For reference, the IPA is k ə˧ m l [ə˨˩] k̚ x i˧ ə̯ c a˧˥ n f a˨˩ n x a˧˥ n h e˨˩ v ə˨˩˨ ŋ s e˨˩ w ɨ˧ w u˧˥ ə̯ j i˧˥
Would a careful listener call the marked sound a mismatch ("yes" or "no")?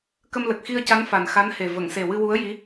no